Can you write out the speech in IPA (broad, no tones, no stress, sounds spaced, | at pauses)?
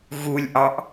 ɣ u lʲ ʔ ɑ ʔ